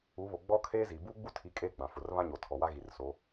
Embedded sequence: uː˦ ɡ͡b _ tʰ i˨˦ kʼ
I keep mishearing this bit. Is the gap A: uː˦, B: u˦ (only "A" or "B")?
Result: B